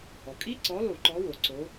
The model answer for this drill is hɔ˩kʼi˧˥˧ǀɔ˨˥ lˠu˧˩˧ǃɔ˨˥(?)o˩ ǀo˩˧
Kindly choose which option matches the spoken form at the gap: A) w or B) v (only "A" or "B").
A